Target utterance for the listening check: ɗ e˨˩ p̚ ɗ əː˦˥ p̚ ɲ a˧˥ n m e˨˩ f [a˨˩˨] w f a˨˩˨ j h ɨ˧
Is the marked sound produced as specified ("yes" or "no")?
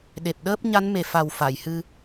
no